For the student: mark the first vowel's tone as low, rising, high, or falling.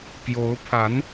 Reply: rising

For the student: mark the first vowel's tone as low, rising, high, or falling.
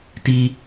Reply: high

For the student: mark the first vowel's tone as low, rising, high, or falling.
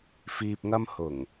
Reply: low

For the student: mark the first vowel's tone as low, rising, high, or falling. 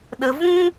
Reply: low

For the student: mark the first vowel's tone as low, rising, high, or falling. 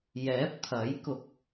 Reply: rising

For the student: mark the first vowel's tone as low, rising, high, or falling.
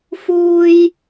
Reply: high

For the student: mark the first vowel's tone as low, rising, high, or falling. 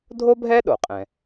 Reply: high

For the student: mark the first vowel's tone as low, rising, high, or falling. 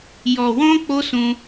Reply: low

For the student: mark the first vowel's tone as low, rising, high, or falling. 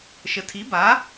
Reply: low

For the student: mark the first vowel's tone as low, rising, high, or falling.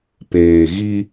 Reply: low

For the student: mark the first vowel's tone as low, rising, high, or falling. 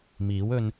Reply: rising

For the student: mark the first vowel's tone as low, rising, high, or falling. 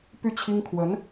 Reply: falling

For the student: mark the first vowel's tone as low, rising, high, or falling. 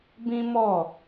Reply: high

